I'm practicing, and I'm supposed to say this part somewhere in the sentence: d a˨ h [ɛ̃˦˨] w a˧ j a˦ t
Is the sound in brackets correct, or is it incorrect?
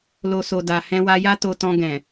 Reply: incorrect